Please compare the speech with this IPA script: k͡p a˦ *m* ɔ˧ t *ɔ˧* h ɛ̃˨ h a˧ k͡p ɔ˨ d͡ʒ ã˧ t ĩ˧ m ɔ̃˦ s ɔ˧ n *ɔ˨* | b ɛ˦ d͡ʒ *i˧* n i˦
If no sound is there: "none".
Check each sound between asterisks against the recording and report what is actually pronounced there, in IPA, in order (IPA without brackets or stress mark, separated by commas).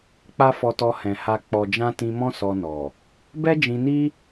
f, ɔ˧, ɔ˨, ĩ˧